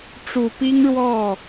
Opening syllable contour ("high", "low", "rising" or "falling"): low